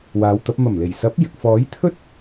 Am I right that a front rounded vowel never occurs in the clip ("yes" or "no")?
yes